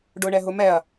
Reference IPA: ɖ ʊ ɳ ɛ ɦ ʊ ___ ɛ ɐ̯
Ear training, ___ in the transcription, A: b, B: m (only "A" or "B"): B